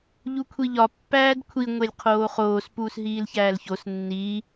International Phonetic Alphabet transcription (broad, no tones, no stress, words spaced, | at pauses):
ʎukʷʰiʎɒ pːæːdkʷʰi ŋʷelʲqʰoːχoːs puːsɦiːlçæːlços nːiː